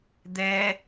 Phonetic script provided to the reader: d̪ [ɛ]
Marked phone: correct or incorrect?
correct